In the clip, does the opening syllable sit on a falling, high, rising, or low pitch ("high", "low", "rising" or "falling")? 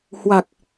low